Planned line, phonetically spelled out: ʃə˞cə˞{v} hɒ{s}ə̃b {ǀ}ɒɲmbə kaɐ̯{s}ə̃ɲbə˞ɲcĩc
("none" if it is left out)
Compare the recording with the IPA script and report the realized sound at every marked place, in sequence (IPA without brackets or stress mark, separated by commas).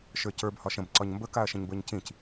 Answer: b, ʃ, ǀ, ʃ